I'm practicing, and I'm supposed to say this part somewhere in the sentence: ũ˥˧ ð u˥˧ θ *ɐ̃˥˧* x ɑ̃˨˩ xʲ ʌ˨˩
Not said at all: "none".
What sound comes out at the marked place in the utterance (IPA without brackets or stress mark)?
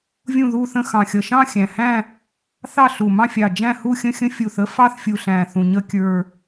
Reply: ə̃˥˧